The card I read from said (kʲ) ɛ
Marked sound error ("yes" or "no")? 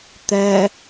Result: yes